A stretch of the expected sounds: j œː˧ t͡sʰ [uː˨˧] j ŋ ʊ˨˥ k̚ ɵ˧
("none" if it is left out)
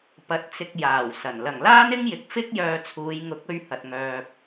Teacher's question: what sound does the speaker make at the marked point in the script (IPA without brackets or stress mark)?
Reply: uː˨˧